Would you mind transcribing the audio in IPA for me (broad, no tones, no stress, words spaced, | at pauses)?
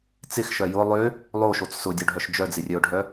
t͡sɪxʃœ jʊ lˠø | lˠoʃot͡s sʊdʲoɖʱœʃ d͡ʒœd͡zɪrʲœʊ̯ɖʱœ